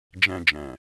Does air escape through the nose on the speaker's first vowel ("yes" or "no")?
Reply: yes